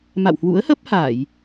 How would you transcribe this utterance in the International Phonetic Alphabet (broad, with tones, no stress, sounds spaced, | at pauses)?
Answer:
m a̰˧˨ w h w ṵ˧˥ ə̯ h ə˦˥ p̚ h aː˧˩˨ j